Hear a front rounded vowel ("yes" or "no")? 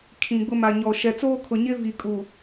no